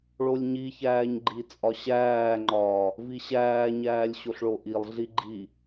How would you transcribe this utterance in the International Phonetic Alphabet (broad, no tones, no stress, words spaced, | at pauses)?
ɭolʲɲiçæːɲ ɡ͡ǃit͡sʼɒɕæːŋ͡ǃɒː | viɕæːɲæːlʲ ɕoɬɭoʔilˠɮi ɡ͡ǃi